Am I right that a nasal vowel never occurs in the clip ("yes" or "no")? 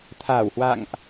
yes